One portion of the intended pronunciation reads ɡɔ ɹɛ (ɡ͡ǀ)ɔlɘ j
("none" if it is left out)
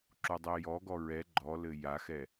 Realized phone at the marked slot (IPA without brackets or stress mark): ɡ͡ǃ